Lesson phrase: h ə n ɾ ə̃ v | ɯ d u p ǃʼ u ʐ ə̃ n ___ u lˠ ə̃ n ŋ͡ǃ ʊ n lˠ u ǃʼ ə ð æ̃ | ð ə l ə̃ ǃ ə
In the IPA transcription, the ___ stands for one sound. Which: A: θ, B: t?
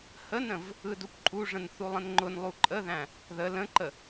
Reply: A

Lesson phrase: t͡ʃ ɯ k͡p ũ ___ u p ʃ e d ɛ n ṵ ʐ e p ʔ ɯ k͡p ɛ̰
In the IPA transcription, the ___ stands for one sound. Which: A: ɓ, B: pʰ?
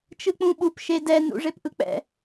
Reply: A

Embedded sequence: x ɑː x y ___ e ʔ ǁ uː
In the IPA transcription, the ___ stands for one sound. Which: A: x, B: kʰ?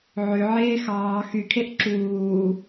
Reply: B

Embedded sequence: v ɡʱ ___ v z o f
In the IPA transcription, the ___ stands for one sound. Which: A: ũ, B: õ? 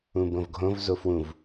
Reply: B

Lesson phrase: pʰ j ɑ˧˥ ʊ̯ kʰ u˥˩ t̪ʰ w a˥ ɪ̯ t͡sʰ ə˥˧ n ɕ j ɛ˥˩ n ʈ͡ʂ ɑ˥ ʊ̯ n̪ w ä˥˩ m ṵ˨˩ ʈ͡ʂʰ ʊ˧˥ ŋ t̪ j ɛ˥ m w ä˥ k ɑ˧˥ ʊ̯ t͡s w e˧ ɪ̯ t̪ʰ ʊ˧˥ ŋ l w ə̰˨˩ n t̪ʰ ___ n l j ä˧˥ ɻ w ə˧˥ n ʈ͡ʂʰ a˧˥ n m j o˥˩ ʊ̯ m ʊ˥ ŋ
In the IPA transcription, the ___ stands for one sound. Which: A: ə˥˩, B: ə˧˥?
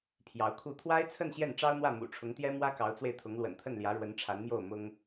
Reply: A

